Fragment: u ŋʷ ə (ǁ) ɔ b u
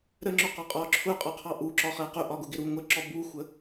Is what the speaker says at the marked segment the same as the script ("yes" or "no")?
yes